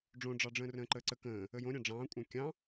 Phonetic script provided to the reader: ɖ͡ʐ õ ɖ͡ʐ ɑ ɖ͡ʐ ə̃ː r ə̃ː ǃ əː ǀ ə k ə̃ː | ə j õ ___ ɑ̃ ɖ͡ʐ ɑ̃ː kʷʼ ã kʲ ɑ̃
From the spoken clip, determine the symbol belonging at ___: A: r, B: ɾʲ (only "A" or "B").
B